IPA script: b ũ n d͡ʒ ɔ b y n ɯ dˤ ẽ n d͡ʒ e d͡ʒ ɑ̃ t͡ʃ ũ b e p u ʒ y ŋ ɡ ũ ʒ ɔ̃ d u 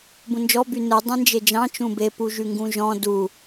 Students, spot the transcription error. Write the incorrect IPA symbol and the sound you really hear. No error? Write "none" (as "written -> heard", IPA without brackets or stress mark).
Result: none